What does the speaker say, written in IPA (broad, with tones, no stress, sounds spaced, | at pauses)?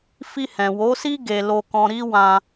f i˧ h ɛ̃˨ w o˨˦ s i˦ ɡ e˧ l o˧ k ɔ̃˧ ɾ i˦ w ã˧